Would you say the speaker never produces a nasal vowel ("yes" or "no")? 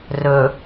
yes